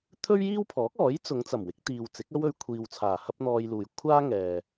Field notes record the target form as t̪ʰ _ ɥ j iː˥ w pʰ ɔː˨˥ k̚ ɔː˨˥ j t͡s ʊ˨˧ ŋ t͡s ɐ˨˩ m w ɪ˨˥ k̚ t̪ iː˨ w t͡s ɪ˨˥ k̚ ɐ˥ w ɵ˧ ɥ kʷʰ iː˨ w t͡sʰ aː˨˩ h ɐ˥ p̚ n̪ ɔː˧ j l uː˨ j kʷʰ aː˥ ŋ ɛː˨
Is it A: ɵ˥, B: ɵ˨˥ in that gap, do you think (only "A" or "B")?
A